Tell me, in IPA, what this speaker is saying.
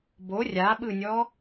b o rʲ a ɓ ɯ nʲ ɔ

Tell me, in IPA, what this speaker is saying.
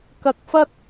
k ɐ˧ k̚ f ɐ˥ t̚

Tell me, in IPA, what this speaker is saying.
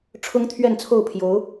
ʈ͡ʂʰ ʊ˥ ŋ t̪ʰ ɥ ɛ˥˧ n t͡sʰ o˥˩ ʊ̯ pʰ j o˧˥ ʊ̯

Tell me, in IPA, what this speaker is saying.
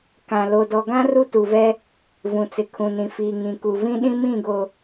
k ã˨ l o˨ d ɔ˨ ɡ ã˦ r u˦ t u˨ v ɛ˦ | v ũ˨ t͡s ɪ˨ kʰ ũ˨ n ĩ˨ f iː˨ ŋ ĩ˨ k u˨ v ĩ˦ ɗ ĩ˦ m ĩ˦˨ ɡ o˨

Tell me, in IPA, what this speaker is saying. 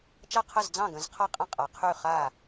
t͡ʃ a˥˩ qʰ ə˥˩ z d͡z ɑ̃˥˩ ɡ ə̃˨˩˦ z qʰ a˥˩ qʼ ə̃˥˩ qʼ a˨˩˦ qʰ y˥˩ χ a˥˩

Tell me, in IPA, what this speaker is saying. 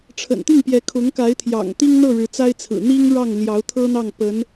ʈ͡ʂʰ ə̰˨˩ n t̪ i˥˩ ŋ p j ɛ˧˥ kʰ ʊ˧˥ ŋ k a˧˥ ɪ̯ t̪ʰ j ɑ̰˨˩ ŋ t̪ i˥ ŋ n̪ ɤ˥˩ ɻ ɻ̩˧˥ t͡s a˥ ɪ̯ t͡sʰ ɹ̩˨˩ n̪ i˥ ŋ ɻ ɑ˥˩ ŋ l j ɑ˧˥ ʊ̯ t̪ʰ ɤ˥ n̪ ɑ˥˩ ŋ p ə˧˥ n

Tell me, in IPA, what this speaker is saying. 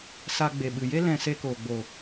s a˧ ɡ͡b e˨ ɓ ɨ˨ j e˦ l ɛ̃˧ s e˧ k oː˨ ɡ͡b o˨

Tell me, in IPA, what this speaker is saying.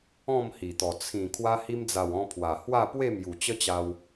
ɔ̃˥˧ m h i˨˩ t̪ ɔ˨˩ t͡sʰ ĩ˨˩ kʰ w a˧ h i˧ m d͡z a˨˩ w ɔ̃˧ pʰ w a˨˩ h w a˥˧ p w e˥˧ m j u˨˩ t͡ɕ ə˦ t͡ɕ a˧ w

